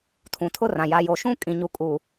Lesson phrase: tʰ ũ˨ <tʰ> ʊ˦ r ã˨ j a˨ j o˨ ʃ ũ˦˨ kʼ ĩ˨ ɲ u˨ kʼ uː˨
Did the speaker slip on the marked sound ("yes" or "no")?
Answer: no